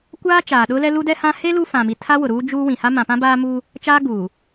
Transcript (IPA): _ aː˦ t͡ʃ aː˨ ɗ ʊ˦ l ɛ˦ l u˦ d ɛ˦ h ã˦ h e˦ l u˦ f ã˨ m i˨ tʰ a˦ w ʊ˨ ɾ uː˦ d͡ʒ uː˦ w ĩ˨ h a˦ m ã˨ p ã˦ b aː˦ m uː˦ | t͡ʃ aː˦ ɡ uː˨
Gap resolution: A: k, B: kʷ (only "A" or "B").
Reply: B